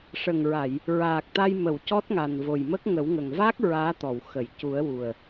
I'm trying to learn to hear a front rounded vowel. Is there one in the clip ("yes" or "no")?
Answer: no